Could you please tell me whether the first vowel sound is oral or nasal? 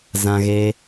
nasal